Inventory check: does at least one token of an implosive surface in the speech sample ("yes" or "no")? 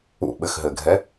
yes